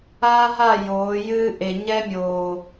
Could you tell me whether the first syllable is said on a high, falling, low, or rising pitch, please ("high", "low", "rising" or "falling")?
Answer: high